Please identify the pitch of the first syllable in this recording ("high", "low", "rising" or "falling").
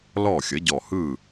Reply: falling